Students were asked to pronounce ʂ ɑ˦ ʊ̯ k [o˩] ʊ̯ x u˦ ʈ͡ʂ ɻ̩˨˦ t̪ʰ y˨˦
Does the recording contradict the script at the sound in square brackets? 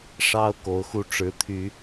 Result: yes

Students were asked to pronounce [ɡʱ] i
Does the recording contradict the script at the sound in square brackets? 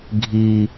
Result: no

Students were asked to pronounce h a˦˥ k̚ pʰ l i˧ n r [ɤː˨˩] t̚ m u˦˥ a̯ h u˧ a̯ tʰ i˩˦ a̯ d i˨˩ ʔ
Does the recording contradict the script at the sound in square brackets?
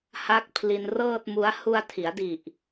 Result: yes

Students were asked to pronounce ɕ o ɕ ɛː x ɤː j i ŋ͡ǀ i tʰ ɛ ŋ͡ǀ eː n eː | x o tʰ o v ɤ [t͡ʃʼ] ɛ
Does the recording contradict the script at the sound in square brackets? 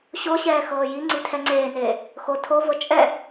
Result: no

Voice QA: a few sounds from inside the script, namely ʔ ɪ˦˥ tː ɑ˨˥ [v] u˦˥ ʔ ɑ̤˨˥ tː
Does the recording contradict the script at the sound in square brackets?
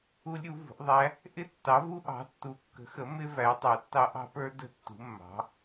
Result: no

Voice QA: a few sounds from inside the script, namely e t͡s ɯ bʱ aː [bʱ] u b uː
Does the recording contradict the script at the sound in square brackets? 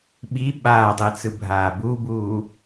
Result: yes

